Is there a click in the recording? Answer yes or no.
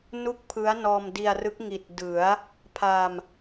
no